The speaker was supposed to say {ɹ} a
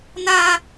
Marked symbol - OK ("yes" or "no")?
no